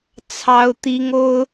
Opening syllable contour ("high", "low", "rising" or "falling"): high